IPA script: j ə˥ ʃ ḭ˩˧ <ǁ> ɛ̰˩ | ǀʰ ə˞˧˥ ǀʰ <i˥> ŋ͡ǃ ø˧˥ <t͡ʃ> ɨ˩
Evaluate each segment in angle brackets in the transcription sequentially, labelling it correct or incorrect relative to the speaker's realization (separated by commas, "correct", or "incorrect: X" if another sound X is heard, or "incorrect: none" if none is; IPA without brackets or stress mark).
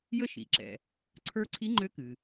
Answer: correct, incorrect: i˧˥, incorrect: k